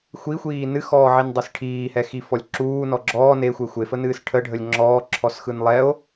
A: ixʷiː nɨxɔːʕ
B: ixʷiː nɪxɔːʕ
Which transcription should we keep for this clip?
A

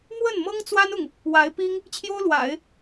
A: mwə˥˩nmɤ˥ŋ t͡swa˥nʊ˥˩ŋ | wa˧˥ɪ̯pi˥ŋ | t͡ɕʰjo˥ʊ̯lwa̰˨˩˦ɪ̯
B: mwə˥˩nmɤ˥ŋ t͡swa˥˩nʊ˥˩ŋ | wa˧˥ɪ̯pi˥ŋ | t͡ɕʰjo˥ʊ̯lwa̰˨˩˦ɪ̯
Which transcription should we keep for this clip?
A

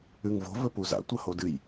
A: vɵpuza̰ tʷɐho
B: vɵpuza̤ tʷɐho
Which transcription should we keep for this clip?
A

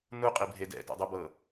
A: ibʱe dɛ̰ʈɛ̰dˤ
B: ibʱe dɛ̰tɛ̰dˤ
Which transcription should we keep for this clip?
B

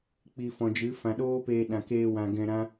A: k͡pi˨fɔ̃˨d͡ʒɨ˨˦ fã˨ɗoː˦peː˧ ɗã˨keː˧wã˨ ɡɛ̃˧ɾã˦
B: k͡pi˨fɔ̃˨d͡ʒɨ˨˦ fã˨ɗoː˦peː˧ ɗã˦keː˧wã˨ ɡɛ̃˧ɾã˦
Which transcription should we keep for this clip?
A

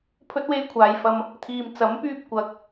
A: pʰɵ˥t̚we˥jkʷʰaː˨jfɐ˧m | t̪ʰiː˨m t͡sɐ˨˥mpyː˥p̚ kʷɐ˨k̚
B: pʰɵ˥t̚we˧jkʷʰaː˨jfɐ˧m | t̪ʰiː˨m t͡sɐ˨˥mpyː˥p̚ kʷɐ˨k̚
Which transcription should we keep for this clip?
A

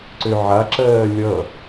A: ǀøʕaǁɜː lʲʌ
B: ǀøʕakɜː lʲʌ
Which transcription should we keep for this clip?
A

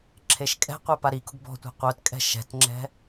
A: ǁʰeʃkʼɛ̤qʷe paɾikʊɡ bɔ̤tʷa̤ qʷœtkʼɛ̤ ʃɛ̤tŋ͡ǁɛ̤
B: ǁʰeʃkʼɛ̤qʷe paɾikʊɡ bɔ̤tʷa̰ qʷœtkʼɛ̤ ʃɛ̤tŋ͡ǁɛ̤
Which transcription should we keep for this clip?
A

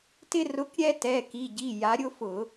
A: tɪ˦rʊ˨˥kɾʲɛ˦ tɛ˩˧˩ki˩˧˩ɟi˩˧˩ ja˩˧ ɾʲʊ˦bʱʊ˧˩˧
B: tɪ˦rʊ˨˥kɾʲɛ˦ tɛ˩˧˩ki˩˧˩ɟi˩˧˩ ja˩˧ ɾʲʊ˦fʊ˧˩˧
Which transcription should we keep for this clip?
B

